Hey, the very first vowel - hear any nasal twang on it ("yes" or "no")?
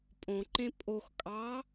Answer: yes